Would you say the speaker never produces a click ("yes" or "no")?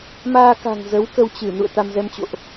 yes